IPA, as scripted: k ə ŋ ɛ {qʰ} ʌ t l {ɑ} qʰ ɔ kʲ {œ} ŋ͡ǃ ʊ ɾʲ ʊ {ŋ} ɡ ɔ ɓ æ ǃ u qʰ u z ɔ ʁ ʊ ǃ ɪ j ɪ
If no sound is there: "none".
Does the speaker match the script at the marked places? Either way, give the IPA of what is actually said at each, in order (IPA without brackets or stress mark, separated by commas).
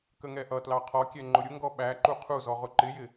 ʔ, ɑ, ɛ, ŋ